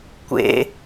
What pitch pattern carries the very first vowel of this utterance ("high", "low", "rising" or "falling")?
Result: high